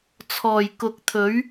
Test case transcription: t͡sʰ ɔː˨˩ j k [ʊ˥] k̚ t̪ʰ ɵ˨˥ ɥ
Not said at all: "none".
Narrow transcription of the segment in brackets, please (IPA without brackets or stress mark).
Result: ʊ˨˥